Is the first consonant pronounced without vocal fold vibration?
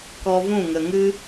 yes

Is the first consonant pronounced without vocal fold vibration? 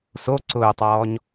yes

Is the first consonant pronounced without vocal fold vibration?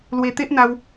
no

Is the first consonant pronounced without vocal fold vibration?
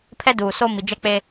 yes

